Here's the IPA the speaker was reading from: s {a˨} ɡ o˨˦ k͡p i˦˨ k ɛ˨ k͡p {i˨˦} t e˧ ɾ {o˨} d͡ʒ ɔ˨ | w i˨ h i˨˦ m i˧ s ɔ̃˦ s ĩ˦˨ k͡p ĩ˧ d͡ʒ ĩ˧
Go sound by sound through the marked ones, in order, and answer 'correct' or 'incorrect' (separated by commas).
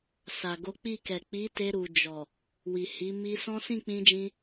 correct, correct, incorrect